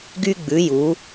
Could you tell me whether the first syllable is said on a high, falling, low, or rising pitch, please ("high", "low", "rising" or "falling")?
high